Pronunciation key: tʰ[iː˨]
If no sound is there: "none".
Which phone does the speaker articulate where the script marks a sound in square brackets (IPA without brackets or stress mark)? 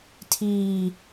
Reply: iː˨